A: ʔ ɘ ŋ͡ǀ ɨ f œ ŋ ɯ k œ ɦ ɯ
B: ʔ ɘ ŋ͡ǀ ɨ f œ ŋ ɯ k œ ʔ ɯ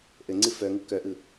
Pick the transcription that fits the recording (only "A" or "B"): B